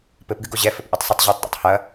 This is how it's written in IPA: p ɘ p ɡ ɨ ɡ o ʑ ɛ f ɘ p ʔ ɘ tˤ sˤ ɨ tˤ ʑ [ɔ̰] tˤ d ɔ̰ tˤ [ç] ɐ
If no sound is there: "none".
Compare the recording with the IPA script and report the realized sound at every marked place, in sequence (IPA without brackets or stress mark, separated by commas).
ɔ, h